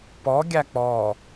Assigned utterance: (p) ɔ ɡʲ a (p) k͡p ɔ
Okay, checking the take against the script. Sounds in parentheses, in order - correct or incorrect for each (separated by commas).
correct, incorrect